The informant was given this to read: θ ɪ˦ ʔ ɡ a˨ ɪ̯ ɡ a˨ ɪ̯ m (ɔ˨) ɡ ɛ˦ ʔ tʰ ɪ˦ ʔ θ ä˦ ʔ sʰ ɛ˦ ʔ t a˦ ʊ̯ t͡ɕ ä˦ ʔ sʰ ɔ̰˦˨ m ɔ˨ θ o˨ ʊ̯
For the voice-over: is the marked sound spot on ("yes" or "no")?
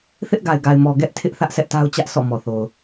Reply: yes